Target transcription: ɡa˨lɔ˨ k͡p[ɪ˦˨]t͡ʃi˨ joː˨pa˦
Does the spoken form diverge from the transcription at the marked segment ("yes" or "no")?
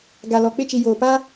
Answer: no